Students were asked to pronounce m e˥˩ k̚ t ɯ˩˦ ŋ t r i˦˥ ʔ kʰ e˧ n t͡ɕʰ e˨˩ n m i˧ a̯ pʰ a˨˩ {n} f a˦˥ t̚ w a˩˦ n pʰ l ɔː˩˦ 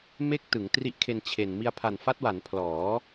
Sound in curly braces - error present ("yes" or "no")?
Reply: no